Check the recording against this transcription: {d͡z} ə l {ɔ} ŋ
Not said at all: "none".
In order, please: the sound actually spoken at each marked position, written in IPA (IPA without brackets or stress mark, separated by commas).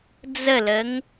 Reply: d͡z, ə